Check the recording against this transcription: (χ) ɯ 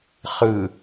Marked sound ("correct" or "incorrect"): correct